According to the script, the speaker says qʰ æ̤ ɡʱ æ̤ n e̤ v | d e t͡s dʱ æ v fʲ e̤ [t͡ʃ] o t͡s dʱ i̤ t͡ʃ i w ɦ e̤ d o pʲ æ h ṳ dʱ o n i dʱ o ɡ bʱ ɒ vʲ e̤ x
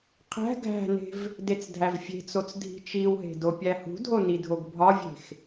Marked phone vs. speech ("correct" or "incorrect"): incorrect